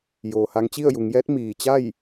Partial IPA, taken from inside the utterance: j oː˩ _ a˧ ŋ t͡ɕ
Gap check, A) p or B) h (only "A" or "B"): B